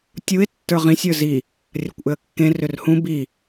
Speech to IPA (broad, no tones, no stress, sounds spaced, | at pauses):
tʲ u ɪ̯ tː ə˞ ʁ ĩ sʲ ə˞ z i | rʲ ɐ kʷ ʔ ʏ ə̯ kː ẽ r ʏ r h ũ b i